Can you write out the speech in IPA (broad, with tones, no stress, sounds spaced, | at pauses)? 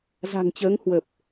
z a̤˨˩ ŋ t͡ɕ əː˨˦ ŋ h w ə˨˩ p̚